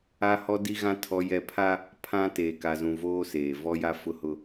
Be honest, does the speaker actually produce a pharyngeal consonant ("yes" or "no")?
no